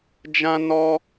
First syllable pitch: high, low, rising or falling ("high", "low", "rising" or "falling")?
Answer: high